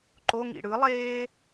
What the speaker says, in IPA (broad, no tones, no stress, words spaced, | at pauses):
ǃoŋḭ ɽɯlˠeː